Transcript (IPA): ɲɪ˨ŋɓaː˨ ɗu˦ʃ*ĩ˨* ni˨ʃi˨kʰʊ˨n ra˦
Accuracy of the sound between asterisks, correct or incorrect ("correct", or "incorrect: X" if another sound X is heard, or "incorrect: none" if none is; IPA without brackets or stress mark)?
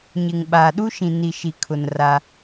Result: correct